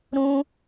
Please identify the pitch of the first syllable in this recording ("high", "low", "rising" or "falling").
high